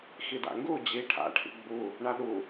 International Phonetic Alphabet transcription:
x i d a̰ ŋ ɡ u d͡ʑ i ʈʰ a̰ ʈʰ ḭ ɡ͡b u | ɳ a ɗ u

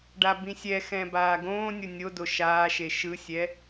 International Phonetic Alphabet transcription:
ɖ a b ĩ sʲ ɛ x ɛ̃ b aː ɡ õː nʲ o nʲ o d o ʃ aː ʃ e ʃ ɯ sʲ ɛ

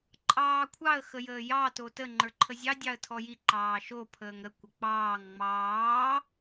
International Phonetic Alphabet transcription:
ǃʼ ɑː kʷʰ ɑ ə̯ x ə j əː j ɑ t o t ə ŋ͡ǃ ə˞ ǃʰ ə zʲ ɑ dʲ ɑ ə̯ tʰ ɔ j i ǃ ɑː ʃ o pʰ əː ŋ ɾ ə kʷ ə k͡p ɑː ŋ ŋ͡m ɑː

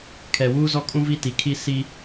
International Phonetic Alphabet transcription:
kʰ ɛ˨ w uː˦ z ɔ˦ kʼ ũ˦ v i˦ t i˨ kʰ i˦ s i˦

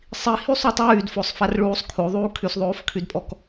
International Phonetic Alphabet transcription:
sˤ i h y sˤ u tˤ yː d f o sˤ f a r ɭ uː sˤ kʰ o ðˤ uː kʰ y s ðˤ oː f kʰ y d pʼ ɔ k

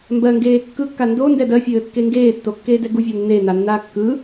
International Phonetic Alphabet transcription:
m b ɜ ŋ ɡ eː kː ɯ kː a n d o n d ɛ d ɜ fʲ ɘː kː e ŋ ɡ eː tː o kː eː d ɛ ɡ u vʲ ɛ nː e n a nː aː kː ɯ

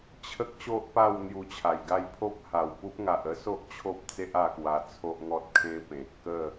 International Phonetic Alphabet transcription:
t͡ɕʰ ə˦ k̚ ɕ o˦ ʔ p a˥˧ w n̪ j u˧ t͡ɕʰ a˨˩ j ɡ a˥˧ j pʰ o˦ p̚ h a˨˩ w p u˦ p̚ ŋ a˨ ʔ ə˦ s o˦ ʔ t͡ɕʰ o˦ p̚ t͡s e˦ ʔ a˧ k w a˧ t͡sʰ o˦ ʔ ŋ ɔ˦ t̚ kʰ ẽ˦ p ẽ˨ t̚ k ə˥˧

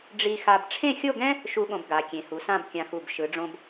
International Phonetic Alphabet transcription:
ɖ͡ʐ i˧ x a˧ b ʈ͡ʂʰ ẽ˥˧ xʲ o˥˧ ɡ ɛ̃˥ | ʃ u˥ ɠ õ˧ b ɡ a˩˧ kʲ ẽ˩˧ h u˩˧ s ã˥˧ b kʲ ã˧ x u˧˩ b ʃ ɯ˩˧ ɖ͡ʐ õ˧ b

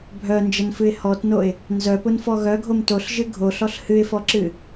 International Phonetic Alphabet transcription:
bʱ œ n d͡ʒ ə n f ɨ ɪ̯ h ɔ t n o ɪ̯ | n z œ p ʊ n f ɔ ɣ œ ɡʱ o m t o ɬ ʒ ɨ ɡʱ o ɬ ɔ ɬ h ɨ ɪ̯ f ɔ ǁ ɨ

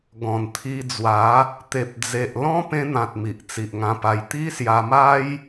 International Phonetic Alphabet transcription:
ɡ ɔ̃˨˩ n t̪ʰ i˧ d͡z w a˨˦ | t̪ e˨ p̚ d͡z e˨ ʔ l ɔ̃˦ p ẽ˧ n̪ ã˨ t̚ m i˨ ʔ t͡s i˨ ʔ ŋ ã˧ p a˧ j t̪ i˦ s j a˧ m a˦ j

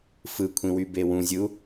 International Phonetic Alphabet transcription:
f ɯ kʷʰ ĩ w y b e w ũ zʲ ɯ u̯

